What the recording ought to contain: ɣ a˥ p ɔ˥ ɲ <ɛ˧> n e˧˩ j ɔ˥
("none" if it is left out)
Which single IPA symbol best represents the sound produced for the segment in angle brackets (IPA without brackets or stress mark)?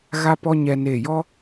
ɛ˧